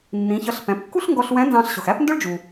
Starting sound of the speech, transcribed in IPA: nː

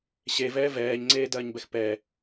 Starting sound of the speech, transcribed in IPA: ɕ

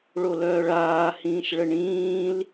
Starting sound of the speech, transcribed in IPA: ɭ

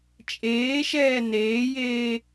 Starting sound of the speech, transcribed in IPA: t͡ʃʼ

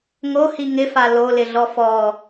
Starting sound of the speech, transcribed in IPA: ŋ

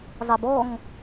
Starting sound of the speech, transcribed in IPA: zˤ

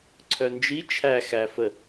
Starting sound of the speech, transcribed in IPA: ǀʰ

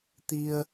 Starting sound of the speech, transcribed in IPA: t̪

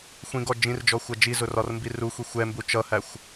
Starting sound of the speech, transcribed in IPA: xʷ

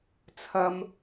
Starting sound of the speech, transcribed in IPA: t͡sʰ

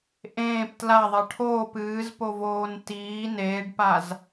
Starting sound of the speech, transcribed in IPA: ʔ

